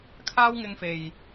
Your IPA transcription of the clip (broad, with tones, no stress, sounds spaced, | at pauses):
kʰ aː˥ w ŋ ɪ˧ ŋ f e˨ j